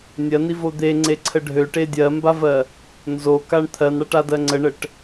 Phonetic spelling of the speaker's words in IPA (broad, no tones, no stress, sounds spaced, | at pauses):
nʲ ɜ n i v o d̪ e ŋ͡ǀ e ǀʰ ə ɖʱ ø ʈ e dʲ ɜ m b a v ɜ | n z o k a ɳ t̪ʰ ɜ n ɽ a ʈ a d ɜ ŋ͡ǀ ə ɳ ə ʈ